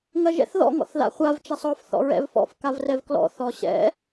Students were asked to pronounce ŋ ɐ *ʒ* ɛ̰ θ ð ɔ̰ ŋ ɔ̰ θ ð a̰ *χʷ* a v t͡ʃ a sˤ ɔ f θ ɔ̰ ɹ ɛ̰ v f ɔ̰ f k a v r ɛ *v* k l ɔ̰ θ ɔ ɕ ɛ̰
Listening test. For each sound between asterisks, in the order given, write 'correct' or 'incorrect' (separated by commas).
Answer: correct, correct, correct